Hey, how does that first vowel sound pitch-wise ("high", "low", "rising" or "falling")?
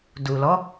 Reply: low